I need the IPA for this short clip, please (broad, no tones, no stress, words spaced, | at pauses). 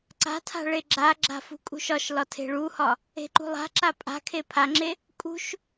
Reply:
ǀa̤tʰa̤ ɭeɡ͡ǁaɡ͡ǁa̤ fṳkʼṳʃɒʃlɒ tʰe̤ɭuhɒ | e̤ǃṳlˠa̤ǁa pʼa̤kʰe pʰaŋ͡ǁe | kʼṳʃ